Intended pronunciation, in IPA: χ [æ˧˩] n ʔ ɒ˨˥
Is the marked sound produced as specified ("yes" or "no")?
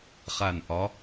no